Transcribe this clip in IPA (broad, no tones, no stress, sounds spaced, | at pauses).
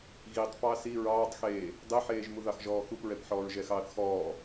ɣ i tˤ p ɑ s i ɹ ɑː tˤ x eː | dˤ e ħ eː ʒ m u ð ɑ x ʒ ɔː x u p ɹ ɛ p ħ ɔː ɹ ʒ ɛ x ɑː θ x ɔː